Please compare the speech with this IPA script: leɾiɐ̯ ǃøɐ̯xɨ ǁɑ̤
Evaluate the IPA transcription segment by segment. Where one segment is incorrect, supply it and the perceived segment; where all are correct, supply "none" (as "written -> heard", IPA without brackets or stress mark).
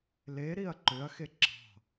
ɨ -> e